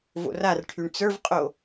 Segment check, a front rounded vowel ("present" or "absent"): present